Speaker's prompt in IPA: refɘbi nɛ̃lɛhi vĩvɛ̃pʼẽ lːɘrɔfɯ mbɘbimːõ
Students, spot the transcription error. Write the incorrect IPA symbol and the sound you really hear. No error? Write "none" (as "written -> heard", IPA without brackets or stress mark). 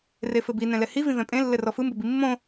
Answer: none